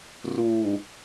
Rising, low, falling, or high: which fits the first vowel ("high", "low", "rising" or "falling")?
low